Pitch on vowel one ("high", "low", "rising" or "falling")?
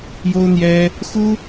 high